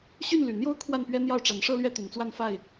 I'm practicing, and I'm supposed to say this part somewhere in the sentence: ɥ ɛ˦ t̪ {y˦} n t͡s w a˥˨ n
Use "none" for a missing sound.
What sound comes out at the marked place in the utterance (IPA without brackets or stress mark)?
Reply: y˨˩